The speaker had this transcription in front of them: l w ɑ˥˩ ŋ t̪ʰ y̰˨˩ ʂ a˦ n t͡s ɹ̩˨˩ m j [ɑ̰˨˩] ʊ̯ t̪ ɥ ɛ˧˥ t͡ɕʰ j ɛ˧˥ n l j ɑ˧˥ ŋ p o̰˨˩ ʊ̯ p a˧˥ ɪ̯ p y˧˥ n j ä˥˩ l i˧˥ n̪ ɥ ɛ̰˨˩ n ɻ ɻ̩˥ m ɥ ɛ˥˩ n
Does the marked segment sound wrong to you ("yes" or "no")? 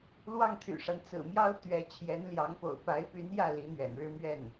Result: yes